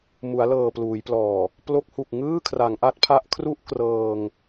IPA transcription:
m u˩˦ a̯ l ɤː˨˩ p l uː˩˦ j p l ɔː˨˩ | p l o˦˥ k̚ h u˨˩ k̚ ŋ ɯː˥˩ kʰ r a˩˦ ŋ ʔ a˦˥ t̚ pʰ a˦˥ ʔ kʰ r u˥˩ ʔ k r ɤː˧ ŋ

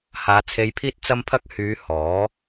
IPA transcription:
h aː˨˧ t͡sʰ e˧ j pʰ iː˥ t̚ t͡s ɐ˥ m pʰ ɐ˥ k̚ h yː˨˧ h ɔː˨˥

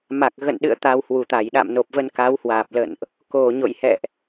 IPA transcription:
m a˨˩ k̚ ɣ ə̰˧˨ n ɗ ɨ̰˧˨ ə̯ t̪ a˧ w h w u˨˩ t̪ a˧˩ j ɗ a̰˧˨ m n o˨˩ p̚ v ə˧ n k a˨˦ w h w aː˨˩ p̚ l ə̰˧˨ n ʔ | k o˨˩ ɲ o̰˧˨ j h ɛ̰˧˨ ʔ

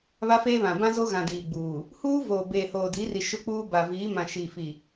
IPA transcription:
β a˦ f eː˦ β ã˨ b ã˦ z o˦ ɣ ã˨ d iː˨ ɡ͡b uː˨ | h uː˦ v oː˨ b eː˨ h oː˨ d i˨˦ r i˨ ʃ ʊ˦ k͡p uː˦ b a˨ v iː˨˦ m ã˨ ʃ iː˨ f i˨

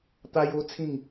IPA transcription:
t̪ a˦ j o˦ t͡sʰ ĩ˥˧ ŋ

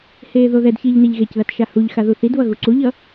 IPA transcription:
h eː ð o ð ɛ d ç iː ʎ n e ʎ ɣ e c ð a t ʃ a h u ʎ x a ð u θ i d β ʌ ɣ u ǀ u ʎ ʌ

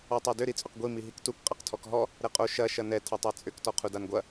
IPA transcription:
ɔ tˤ a d ʏ ɾ i t͡sʼ ʏ q ɡʷ i m i ɦ i k t u k qʼ a q tʰ ɔ k ɦ ɔ | ɾ ɛ qʼ o ʃ ɐ ʃ ɐ n ɛ tʰ ɐ tˤ a t͡sʼ ʏ k t ɔ qʰ u d a n ɡʷ ɐ

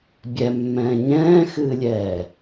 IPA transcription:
bʲ ɛ mː ɛ̃ː ɲ ɛ̃ː x ɨː lʲ ɛː

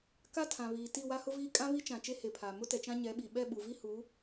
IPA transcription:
k a˦ tʰ ã˨ β iː˨ t i˦˨ w a˦ h ʊ˦ v iː˦ kʼ ã˦ β i˦ t͡ʃ ã˨ t͡ʃ e˦ h e˨ pʰ aː˨ m ʊ˦ t ɛ˨ t͡ʃ ã˦ ɲ ɛ˨˦ ɓ i˨ ɓ ɛ˦˨ ɓ u˨ v i˦ h u˨˦

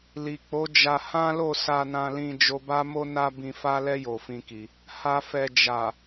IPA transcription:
l i˨ k͡p o˨˦ d͡ʒ a˧ h ã˦ l o˦˨ s a˧ n ã˧ l ĩ˧ d͡ʒ o˧ b a˦ m o˦ n a˦ b ĩ˧ f a˦ l ɛ˦ j o˧ f ĩ˦ k i˧ | h a˨ f ɛ˨ d͡ʒ a˨

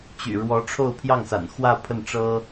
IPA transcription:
t͡ɕ y̰˨˩ ɻ w ɔ˧˥ ʈ͡ʂʰ o˥˧ ʊ̯ pʰ j ɑ˥˩ ŋ s a̰˨˩ n x w ä˥˧ pʰ ə˥˩ n ʈ͡ʂ ɤ˥

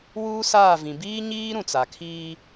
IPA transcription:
w uː˦ s aː˦˨ v ĩ˨ b iː˦ ɲ iː˦ ɾ ũ˨ t͡s a˨ kʰ iː˦

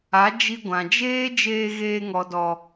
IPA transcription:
a˨˦ d͡ʒ i˧ ɡʷ ã˨ d͡ʒ eː˦ d͡ʒ eː˧ ɣ eː˧ ŋ ɔ˨ d ɔ˨

